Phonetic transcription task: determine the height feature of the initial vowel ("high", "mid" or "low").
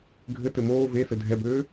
mid